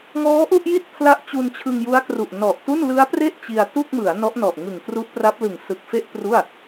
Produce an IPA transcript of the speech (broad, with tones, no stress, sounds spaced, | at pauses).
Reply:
ŋ ɔː˦˥ ʔ u˥˩ ʔ j i˥˩ t̚ pʰ l a˥˩ ʔ t͡ɕ u˧ n t͡ɕʰ ɯ˧ ŋ j u˦˥ a̯ k r u˨˩ ʔ n ɔ˨˩ ʔ t u˥˩ n l ɯ˦˥ a̯ p r e˥˩ ʔ t͡ɕ i˧ a̯ t u˥˩ k̚ m ɯ˩˦ a̯ n ɔ˦˥ ʔ n ɔ˨˩ ʔ ŋ ɯ˨˩ ŋ k r u˦˥ ʔ p r a˦˥ p̚ l ɯ˨˩ ŋ s ɯ˨˩ k̚ f e˥˩ ʔ p r u˥˩ a̯